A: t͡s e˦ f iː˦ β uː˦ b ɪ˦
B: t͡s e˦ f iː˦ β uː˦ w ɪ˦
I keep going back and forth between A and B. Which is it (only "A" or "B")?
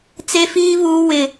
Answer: B